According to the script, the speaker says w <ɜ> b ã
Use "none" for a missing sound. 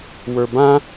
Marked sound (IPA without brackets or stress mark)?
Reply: ə˞